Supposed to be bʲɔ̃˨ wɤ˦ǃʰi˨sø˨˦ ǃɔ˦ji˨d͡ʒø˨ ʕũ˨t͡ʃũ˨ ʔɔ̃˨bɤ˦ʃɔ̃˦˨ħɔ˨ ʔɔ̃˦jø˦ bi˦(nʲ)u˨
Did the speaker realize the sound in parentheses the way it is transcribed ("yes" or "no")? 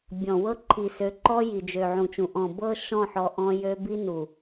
no